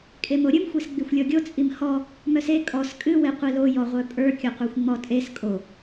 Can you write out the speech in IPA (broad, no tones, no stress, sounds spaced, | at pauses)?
kʼ e m o ɾʲ ɨ m xʷ e s ɡ͡b i xʷ lʲ ɔ ɡʲ o t͡sʼ i m h ɔ | m œ s e kʼ ɔ s kʼ ɨ w e qʷ i l o j ɔ ʁʷ œ pʼ ə˞ kʲ o qʷ ə˞ xʷ ŋ͡m ɔ tʼ e s kʼ o